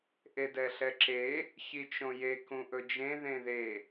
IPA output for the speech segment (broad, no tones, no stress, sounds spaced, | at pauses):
ʔ e d ɛ ɬ ɛ ǁ e | ç i t͡ʃ õ j e k ũ ʔ ɵ d͡ʒ ẽ ð ẽ ð e